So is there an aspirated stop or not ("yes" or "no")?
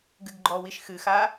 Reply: no